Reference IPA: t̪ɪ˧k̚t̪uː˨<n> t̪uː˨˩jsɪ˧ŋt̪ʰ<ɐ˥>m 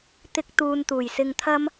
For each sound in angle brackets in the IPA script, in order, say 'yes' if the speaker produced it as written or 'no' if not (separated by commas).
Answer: yes, yes